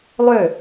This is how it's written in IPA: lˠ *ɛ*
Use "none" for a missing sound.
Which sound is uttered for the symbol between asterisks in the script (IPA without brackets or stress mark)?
ø